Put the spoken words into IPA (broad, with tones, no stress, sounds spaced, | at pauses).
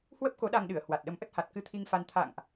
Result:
h w ə˦˥ p̚ k o˨˦ ɗ a˧ ŋ ɗ ɨ˧˩ ə̯ h w a˨˩ t̚ ɗ ə˨˦ m ʔ ə˦˥ t̚ h a˨˩ t̚ k ɨ˧ t̪ʰ i˧ ŋ f a˧ n t̪ʰ a̰˧˨ ŋ ʔ